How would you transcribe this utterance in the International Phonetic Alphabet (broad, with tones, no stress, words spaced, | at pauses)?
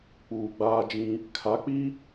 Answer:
k͡puː˨ɡ͡baː˦d͡ʒĩ˦ | kʰa˨˦k͡pi˦